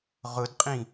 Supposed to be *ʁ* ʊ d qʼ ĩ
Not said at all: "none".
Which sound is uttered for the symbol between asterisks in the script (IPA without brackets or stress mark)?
ʁ